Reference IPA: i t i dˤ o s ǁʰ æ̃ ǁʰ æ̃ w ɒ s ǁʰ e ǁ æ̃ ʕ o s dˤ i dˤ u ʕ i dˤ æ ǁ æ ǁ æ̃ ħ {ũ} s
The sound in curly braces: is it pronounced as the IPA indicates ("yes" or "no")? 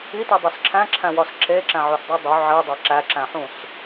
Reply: yes